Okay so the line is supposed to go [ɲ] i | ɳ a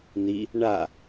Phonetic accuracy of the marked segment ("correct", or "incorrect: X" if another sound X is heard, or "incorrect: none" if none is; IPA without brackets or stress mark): incorrect: n̪